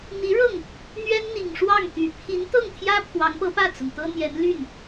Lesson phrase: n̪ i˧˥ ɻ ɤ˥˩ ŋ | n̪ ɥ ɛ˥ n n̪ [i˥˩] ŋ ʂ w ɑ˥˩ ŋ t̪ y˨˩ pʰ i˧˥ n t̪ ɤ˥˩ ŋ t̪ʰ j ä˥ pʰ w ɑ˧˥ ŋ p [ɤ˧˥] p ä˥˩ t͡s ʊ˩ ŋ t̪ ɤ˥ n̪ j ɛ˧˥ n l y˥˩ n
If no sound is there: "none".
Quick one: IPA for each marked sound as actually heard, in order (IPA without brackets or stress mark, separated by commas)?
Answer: i˨˩, ɤ˧˥